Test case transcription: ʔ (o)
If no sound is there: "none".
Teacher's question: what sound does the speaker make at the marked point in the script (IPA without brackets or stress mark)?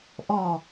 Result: ɔ